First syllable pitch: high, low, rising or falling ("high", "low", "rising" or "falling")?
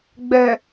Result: low